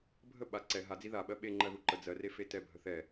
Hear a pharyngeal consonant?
no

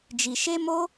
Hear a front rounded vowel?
no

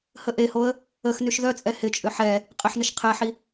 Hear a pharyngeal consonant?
yes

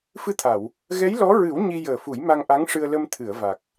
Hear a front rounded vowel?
no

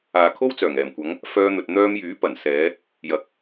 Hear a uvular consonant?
no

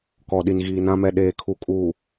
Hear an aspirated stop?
yes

